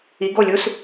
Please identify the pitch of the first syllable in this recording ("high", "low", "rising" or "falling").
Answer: rising